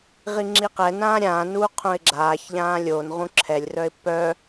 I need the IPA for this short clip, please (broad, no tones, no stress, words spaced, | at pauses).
ʁiŋ͡ǁiqɛnãː ɾʲãːnuː qʰũɪ̯ɡ͡ǁaːçʎãː lʲon ʁũǁʰɛlʲrœɪ̯ pœ